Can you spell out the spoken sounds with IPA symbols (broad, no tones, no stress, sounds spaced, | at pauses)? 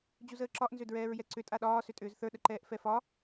d͡ʑ u z əː ǁ ɒ ʔ n z ʏ d ɹ ɛː ɹ j ɛ ǀ ʏ tʼ a ɗ ɒː s ʏ tʼ ʏː z θ ə˞ ɗ ə ǃ ɛː ʔ f ɛ f ɒ